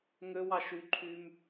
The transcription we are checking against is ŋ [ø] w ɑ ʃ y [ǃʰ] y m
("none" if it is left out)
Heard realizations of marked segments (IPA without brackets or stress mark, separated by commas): ø, ǃʰ